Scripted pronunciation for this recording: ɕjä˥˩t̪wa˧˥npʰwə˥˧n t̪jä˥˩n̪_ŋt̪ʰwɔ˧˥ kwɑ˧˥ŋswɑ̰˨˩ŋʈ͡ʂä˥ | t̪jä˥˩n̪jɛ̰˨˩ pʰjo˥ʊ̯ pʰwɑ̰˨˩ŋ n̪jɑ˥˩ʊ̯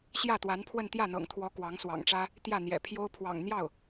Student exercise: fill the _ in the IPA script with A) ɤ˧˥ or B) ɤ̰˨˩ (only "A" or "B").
B